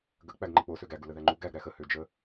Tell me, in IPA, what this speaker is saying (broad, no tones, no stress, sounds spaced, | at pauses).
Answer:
ɡ ə k͡p æ ɡ ŋ͡ǃ ə k͡p o s ø ɡ æ ɡ u l ə ð æ ŋ͡ǃ u ɡ æ ɡ ɾ æ x ə h ø d͡ʒ ə